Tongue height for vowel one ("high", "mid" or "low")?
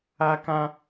low